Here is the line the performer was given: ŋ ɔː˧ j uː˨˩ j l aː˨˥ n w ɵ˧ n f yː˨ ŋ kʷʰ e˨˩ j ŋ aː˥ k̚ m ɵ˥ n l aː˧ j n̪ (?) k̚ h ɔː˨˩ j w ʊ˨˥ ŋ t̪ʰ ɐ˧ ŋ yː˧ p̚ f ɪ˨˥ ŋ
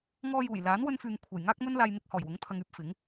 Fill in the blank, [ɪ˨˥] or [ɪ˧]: ɪ˧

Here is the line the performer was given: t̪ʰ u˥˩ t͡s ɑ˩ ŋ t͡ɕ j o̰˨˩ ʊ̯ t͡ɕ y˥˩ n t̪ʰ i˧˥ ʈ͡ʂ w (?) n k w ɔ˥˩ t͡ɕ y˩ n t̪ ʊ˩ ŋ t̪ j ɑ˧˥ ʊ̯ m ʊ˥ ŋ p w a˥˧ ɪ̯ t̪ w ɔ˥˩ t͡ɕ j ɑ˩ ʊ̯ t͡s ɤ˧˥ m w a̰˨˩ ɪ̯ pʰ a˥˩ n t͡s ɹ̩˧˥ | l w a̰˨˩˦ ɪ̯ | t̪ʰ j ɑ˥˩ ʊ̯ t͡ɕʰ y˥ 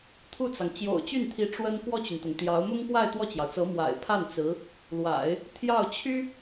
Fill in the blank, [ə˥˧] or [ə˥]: ə˥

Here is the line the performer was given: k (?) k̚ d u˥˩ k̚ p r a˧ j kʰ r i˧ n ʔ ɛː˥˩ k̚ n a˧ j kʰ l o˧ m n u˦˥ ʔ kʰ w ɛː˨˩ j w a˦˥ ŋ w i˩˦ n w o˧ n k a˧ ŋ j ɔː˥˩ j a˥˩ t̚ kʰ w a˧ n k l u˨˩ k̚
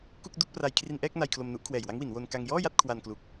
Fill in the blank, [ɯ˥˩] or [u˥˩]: u˥˩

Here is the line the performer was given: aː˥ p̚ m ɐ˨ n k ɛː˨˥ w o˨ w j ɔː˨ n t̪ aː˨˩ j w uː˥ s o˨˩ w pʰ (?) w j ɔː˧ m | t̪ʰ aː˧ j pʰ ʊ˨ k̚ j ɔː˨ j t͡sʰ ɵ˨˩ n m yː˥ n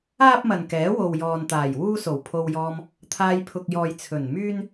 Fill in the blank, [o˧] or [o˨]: o˧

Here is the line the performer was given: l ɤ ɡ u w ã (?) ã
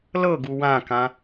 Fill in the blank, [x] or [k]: k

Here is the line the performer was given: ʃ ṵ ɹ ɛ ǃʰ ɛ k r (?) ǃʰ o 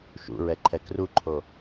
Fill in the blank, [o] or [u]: u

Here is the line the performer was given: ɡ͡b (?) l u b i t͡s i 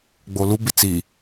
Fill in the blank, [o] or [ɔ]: o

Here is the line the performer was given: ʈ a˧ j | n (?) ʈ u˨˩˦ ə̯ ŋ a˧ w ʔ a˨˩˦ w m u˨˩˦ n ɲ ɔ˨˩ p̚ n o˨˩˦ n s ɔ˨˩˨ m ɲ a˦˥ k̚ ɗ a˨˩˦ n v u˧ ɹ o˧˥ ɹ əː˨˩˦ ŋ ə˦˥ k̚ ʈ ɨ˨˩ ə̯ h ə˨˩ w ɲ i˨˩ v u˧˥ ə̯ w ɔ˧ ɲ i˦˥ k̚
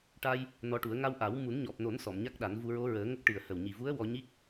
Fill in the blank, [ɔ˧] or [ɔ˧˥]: ɔ˧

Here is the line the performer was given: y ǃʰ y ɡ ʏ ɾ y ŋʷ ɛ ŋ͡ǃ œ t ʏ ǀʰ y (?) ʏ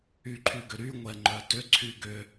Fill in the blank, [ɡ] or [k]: ɡ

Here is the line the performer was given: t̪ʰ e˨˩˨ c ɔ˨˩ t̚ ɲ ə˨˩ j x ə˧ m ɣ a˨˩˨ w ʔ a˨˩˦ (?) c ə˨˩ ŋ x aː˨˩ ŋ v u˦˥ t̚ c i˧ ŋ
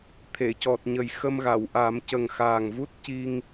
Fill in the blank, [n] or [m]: m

